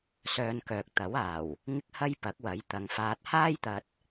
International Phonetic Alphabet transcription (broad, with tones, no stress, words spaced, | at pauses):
sœː˧nkœː˨k̚ t̪ɐ˨˥waː˨˩w | ŋɪ˥k̚ hɐ˥jpɐ˨˥k̚ wɐ˨˥jt̪ɐ˨ŋfaː˧t̚ haː˥jt̪ɐ˧t̚